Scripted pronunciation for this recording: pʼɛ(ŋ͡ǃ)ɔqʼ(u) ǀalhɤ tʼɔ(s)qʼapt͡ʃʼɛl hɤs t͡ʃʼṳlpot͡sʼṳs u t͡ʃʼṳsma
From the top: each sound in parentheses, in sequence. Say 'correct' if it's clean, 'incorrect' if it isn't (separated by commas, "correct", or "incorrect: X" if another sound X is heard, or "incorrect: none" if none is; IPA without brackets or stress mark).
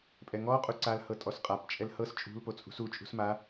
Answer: incorrect: ŋ, correct, correct